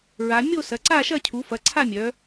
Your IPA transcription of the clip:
ɹ a˩˧ mʲ o˦˨ s ɐ˩˧ ǀ a˦˨ ʃ ɐ˦˨ cʰ u˩˧ f ɐ˩˧ ǀʰ a˦˨ mʲ œ˩˧

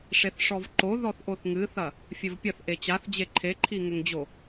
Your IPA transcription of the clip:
ʂ e θ ʂ ɔ v ǃ o ð ɔ θ ʔ o θ ŋ ɨ θ ɐ | fʲ ɘ v pʲ ɐ θ ʔ e t͡ɕ a θ d͡ʑ e ǃʰ e ǃʰ i ŋ ɘ ŋ d͡ʑ o

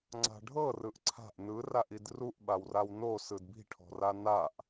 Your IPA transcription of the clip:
ŋ͡ǀ a̤ ɖʱ ɤ r ɯ ʔ ǀʰ a̤ ʔ n ɯ r a ʔ i d r u ʔ ɓ a w r a w n o s ɯ d b i̤ ʈʰ ɔ̤ r a n a ʔ

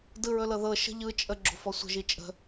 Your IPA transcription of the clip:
d ɯ ɹ ɵ l ɤ ð ɤ ʃ ə̤ ʎ ɯ t͡ʃʼ ə ɡ͡ǁ o̤ f ɔ sʷ ə̤ ʒ i t͡ʃʼ ə̤

